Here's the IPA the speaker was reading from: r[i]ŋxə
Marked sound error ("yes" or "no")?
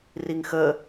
no